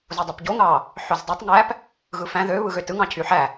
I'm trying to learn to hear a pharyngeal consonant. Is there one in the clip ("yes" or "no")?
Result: yes